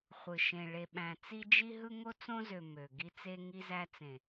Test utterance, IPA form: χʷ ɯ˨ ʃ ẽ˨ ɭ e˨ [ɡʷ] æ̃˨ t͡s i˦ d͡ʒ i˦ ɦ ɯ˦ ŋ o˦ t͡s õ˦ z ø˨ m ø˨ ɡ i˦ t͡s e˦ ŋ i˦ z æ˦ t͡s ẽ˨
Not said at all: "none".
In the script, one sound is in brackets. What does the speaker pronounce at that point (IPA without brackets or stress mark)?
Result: ɓ